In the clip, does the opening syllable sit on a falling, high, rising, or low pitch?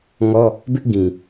high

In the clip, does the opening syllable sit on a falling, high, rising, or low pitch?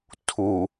low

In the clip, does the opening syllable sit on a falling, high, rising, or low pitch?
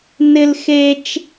high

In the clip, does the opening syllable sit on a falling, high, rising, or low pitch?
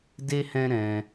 high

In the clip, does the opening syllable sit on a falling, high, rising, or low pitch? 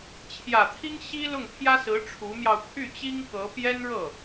low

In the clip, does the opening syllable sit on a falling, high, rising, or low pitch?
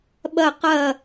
falling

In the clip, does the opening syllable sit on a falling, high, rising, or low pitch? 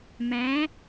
rising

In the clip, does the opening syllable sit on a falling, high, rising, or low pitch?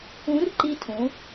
rising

